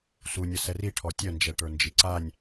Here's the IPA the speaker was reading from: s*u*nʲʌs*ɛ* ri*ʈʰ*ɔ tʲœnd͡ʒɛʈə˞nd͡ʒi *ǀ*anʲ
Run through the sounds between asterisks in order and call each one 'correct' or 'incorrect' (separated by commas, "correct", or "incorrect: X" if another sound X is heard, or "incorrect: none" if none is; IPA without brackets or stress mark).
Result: correct, correct, correct, correct